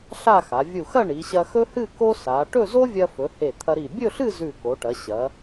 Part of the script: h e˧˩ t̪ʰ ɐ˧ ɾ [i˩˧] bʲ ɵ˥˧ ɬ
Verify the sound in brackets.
incorrect: i˧˩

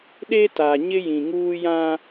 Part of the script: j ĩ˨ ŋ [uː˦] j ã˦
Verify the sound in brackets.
correct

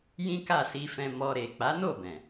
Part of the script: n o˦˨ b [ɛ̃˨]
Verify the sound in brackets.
correct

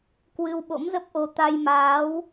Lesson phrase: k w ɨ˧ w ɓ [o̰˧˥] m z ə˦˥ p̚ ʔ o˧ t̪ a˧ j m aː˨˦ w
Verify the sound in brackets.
correct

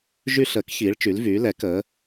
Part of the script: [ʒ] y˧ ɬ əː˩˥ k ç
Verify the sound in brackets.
correct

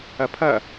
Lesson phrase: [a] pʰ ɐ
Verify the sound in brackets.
incorrect: ɐ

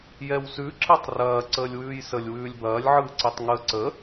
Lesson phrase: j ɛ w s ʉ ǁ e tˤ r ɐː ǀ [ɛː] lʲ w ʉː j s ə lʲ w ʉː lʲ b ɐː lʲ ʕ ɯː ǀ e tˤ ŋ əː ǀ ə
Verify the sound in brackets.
incorrect: əː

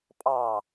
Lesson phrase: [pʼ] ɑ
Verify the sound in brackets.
correct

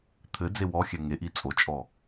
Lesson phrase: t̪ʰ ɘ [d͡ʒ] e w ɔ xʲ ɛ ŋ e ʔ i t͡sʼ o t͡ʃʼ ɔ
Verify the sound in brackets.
incorrect: d͡z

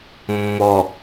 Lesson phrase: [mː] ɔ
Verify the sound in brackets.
correct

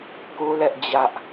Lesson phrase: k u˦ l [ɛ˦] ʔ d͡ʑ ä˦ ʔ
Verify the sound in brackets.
correct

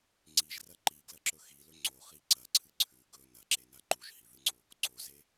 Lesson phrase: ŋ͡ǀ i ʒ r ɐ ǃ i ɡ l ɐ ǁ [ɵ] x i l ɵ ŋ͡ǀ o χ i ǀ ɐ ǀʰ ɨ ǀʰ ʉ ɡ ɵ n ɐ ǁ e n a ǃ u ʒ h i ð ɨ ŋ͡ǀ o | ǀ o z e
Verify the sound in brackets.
correct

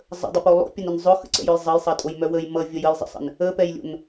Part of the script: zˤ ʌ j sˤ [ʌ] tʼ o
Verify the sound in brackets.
correct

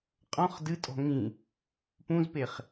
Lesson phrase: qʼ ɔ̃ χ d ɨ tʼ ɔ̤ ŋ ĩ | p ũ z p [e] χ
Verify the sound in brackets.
correct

